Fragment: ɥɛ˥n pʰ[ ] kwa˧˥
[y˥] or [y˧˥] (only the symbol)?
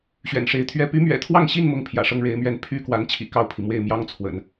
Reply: y˥